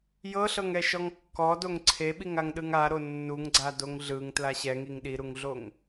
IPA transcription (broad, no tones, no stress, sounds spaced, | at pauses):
j ɤ ɬ ɤ ŋ ɛ ʃ ɔ ŋ kː ɔ d o ŋ ǀʰ e ɓ i ŋ a ŋ ɗ ɯ ŋ a ɾ o nː u ŋ ɡ͡ǀ a d o ŋ ɮ ɯ ŋ t l a ɕ ɛ ŋ i ŋ ɗ i ɾ u ŋ ɮ o ŋ